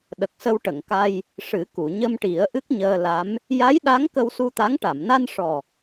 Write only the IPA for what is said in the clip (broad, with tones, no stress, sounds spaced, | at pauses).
ɗ ə˨˩ k̚ s ə˧ w ʈ ə˨˩˨ ŋ k a˧ j | ʂ ɨ˨˩˦ k u˨˩˨ ɲ ə˧ m ʈ i˨˩˦ ə̯ ʔ ɨ˦˥ k̚ ɲ əː˧ l a˧˥ m | j a˧˥ j ɗ a˧˥ ŋ k ə˧ w s u˧ t̪ a˧˥ ŋ ʈ a˨˩˨ m n a˧ n ʂ ɔ˨˩